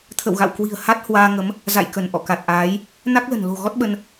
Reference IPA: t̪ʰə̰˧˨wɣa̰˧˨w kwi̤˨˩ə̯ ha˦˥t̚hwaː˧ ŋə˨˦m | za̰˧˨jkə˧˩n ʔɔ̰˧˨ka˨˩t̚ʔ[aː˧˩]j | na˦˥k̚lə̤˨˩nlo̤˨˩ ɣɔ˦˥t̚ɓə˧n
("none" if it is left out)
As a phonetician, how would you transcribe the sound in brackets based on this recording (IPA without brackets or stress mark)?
aː˨˦